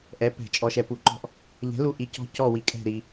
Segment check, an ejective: present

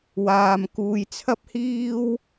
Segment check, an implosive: absent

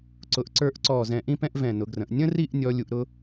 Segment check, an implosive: absent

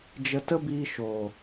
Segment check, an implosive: absent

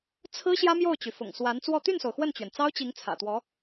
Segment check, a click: absent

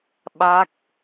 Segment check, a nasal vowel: absent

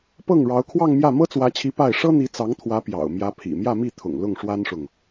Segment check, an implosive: absent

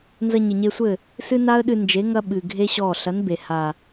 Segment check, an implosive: present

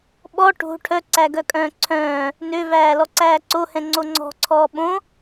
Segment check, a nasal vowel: present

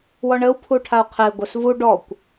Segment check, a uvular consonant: present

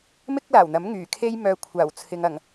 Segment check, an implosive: absent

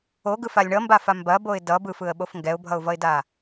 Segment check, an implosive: present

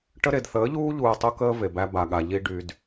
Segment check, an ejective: absent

